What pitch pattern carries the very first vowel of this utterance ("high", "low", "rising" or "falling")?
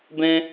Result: high